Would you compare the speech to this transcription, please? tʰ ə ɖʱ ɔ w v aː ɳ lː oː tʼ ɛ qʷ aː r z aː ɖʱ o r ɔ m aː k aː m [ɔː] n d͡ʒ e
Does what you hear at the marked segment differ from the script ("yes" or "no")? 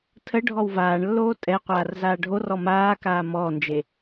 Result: no